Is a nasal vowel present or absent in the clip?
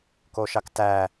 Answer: absent